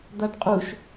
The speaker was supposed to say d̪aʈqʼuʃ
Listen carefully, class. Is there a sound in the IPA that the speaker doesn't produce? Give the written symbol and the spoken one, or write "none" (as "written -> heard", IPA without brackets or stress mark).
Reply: none